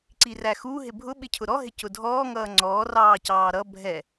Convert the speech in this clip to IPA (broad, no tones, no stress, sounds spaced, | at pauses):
ǀ i r æ x u ɦ ɪ bʱ ʊ ɓ ɪ cʰ ʊ ɾ ɔ ɦ ɪ c ʊ dʱ ɔː ŋ ʌː ŋ͡ǀ ɔː r ɑː c ɑː ɾ ʌ bʱ ɛ